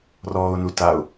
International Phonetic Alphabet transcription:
r ɔː ʊ̯ n u t a ʊ̯

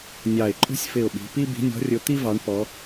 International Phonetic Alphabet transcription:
nʲ ɑ˧˩ ɪ̯ ǃʼ ṳ˥ sʲ f ɪ˧˩ ʊ̯ ɓ i̤˩˧ p i˥ b i̤˨˥ nʲ ɔ̤˨˥ rʲ ʊ˨˥ t̪ i˥ v ɑ˩˧ ɳ p ɔ˩˧

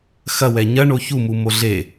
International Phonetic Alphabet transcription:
x ɐ w ɛ ɲ ɐ ɳ o ç u m u m o ɮ e

